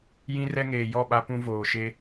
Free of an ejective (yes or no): yes